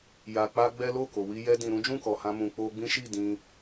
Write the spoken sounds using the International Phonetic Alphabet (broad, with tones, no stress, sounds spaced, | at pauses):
j a˧ k͡p a˦ ɡ͡b ɛ˦ l o˦˨ k o˨ w i˧ j ɛ˧ d ĩ˨ ɾ ũ˨˦ d͡ʒ ũ˦˨ k ɔ˨ h ã˧ m ũ˨ k͡p o˧ ɡ͡b ĩ˦ ʃ i˦˨ d ĩ˧